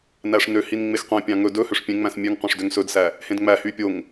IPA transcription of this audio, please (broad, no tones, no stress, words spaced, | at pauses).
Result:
næʂnøhin ŋ͡mexqʷẽpʲɑ̃ ŋɵ dɵ høʂpʲẽŋ͡mæ̃s mʲøŋ qʷæ̃ʂdøŋsɵdsæ | hẽdŋ͡mæhy pʲoŋ